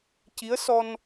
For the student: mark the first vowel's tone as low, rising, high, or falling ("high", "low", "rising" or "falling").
rising